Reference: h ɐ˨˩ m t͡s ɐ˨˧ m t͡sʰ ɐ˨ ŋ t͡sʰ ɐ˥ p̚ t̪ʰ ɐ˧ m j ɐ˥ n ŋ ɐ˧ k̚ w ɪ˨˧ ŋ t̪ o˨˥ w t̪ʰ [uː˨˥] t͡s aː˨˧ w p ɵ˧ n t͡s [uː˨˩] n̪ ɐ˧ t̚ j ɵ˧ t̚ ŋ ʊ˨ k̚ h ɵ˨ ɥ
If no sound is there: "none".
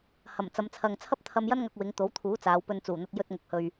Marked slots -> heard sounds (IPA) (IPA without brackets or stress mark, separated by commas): uː˨˥, uː˨˩